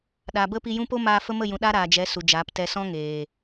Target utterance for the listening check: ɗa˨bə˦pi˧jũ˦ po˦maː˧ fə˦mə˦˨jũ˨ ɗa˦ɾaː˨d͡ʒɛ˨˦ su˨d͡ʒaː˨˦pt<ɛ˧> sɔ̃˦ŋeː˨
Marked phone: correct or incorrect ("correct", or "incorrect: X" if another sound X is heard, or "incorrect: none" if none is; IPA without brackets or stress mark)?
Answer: correct